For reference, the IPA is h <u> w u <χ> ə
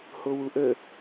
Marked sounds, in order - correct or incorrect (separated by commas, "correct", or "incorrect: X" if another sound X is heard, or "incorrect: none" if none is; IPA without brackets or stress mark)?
incorrect: o, incorrect: ʔ